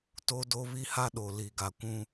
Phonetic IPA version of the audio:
t o˦ d o˦ β i˦ h a˦ ɗ o˨ l i˨ ɡ a˨ kʷ ũ˦

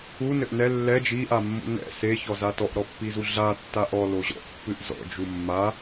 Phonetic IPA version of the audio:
u n ɘ ʔ n ɛ lː ɛ d͡ʒ i ʔ a mː ṵ n ɛ̰ s e ç ɔ z a t ɔ ʔ ɾ ɔ pː i z u ɮ a tː a ʔ ɔ l o ʑ ɔ̰ ʔ pː ɨ ʔ z ɔ̰ d͡ʒ u mː a

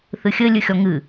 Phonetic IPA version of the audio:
θ ɨ xʲ ɘ lʲ ɨ xʲ ɔ ŋ ɨ

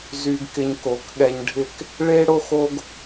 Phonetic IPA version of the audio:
z y˧ ɡ k ɪ˧ ɲ k o˨˦ k ɠ ɛ˧ ɲ ɖʱ ɪ˦˨ k | ɭ e˦ ɽ o˦ x o˦ ɡ

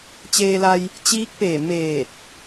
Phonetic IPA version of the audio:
t͡ɕ eː˧ l a˧ j | t͡ɕ iː˧˥ k̚ p eː˧˩ m eː˧˩ t̚

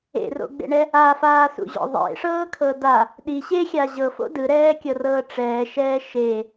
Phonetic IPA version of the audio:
ḛ r o̰ ɡ͡b ḛ ɳ ɛ | a f aː s ṵ ʑ ɔ̰ ðˤ ḛ ʂ ɤː kʰ ɤ d a | ɗ i ɕ e xʲ a ʑ ɤ f o̰ d ɯ ɾ ɛː kʲ ɤ r ɤː ʈ͡ʂ ɛː ʃ ɛː ʃ e

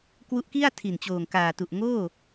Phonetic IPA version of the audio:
k w u˦˥ ʔ k i˥˩ a̯ tʰ i˨˩ n t͡ɕ oː˨˩ ŋ k aː˨˩ t u˨˩ ʔ ŋ oː˥˩

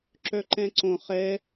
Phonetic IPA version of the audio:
ǁ œ ǃ ɛ̃ ǀ õ χ ɛ

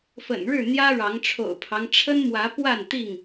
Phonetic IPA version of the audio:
f ə̰˨˩ n ɻ ɻ̩˥˨ n̪ j ä˦ ɻ ɑ˨˦ ŋ ʈ͡ʂʰ o̰˨˩ ʊ̯ pʰ ɑ˦ ŋ ʈ͡ʂʰ ə˦ n m w ä˨˦ p w a˥˨ n t̪ i˥˨ ŋ

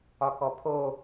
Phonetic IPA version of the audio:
ɒ k ɔ pʰ o

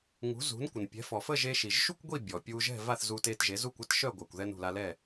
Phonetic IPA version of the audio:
ŋ ṳ˩˥ z ṳ˩˥ n kʷ ə˩ n pʲ ɛ̤˩˥ f ɔ˩ f ə˥˩ ʒ e˧ ʃ i˩ ʒ ʃ u˥ kʷ ɡʷ i˥˩ bʲ ɔ˩ pʲ u˧ ʒ ɛ̤˥˩ v a˥˩ θ z u˧ t e˧ t ʒ e˩˥ z u˥˩ kʷ ɛ˥ t ʃ œ˥˩ ɡʷ a˩ kʷ ð ɛ˧ n ṳ˩ l a˧ l ɛ˥˩

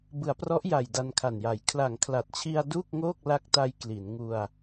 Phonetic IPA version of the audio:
b ɯ˩˦ a̯ p r ɔ˦˥ ʔ j a˨˩ j d a˧ n kʰ a˨˩ n j a˩˦ j kʰ l a˩˦ ŋ kʰ l a˨˩ t̚ t͡ɕʰ i˧ a̯ d uː˥˩ k̚ ŋ oː˥˩ k̚ l a˦˥ k̚ t a˧ j k l i˩˦ n ŋ u˧ a̯

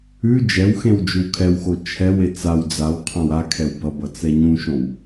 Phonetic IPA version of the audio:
ʉ d͡ʒ ɛ w x ẽ w d͡ʒ ʉ w kʰ ɛ w x o t͡ʃʰ ɛ w e t͡s a w d͡z a w qʰ ã w a kʰ ɛ w b ʌ b ʌ t͡s ɛ ɲ ũ ʃ õ w

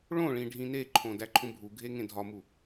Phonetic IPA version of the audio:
ɭ õ ɭ ĩ ɖʱ ĩ n e ǃʰ õ d æ ǃʰ ũ bʱ u ɡʱ e ŋ ẽ dʱ ɒ m u

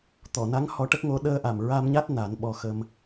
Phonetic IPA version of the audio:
t̪ ɔ˨˩˨ n a˧˥ ŋ h ɔ˧˥ ʈ ə˦˥ k̚ ŋ o˧˥ ɗ əː˧ ʔ a˨˩ m ɹ a˧ m ɲ a˦˥ t̚ n a˨˩˦ n ɓ ɔ˧ x ə˧ m

